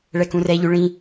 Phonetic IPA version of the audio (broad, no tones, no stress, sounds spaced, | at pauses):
ɭ ɛ k ũ r ɛ ʎ ʉ ɭ ĩ